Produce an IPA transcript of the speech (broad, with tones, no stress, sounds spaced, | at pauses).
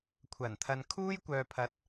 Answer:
kʷʰ ɐ˨˩ n t̪ʰ ɐ˨ n kʰ uː˥ j kʷ œː˨ pʰ ɐ˨˥ t̚